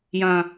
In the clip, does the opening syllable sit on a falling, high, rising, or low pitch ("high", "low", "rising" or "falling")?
low